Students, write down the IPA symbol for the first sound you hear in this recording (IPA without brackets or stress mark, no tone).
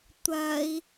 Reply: tʷ